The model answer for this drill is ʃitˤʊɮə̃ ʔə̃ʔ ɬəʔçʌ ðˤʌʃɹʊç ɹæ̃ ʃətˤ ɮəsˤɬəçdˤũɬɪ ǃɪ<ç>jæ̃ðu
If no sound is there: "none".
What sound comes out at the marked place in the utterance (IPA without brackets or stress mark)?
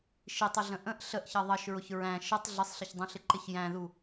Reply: ç